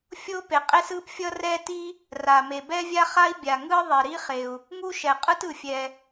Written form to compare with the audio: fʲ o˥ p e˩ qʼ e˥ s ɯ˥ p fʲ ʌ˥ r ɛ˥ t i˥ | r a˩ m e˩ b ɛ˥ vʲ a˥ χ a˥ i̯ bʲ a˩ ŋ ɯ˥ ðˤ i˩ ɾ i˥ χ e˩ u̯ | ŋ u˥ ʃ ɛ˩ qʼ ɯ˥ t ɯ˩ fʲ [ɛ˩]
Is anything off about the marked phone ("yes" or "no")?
no